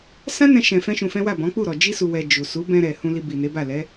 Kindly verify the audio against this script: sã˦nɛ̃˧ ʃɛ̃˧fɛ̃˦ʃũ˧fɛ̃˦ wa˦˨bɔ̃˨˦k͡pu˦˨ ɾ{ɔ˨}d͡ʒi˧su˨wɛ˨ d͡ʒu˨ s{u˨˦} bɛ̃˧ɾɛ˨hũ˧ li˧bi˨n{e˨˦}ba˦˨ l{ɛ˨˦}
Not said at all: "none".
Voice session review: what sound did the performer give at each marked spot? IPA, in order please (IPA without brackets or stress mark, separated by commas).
ɔ˨, u˨˦, e˨˦, ɛ˨˦